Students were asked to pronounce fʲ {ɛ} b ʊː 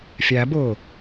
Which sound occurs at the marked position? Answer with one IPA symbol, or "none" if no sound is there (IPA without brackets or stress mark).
æ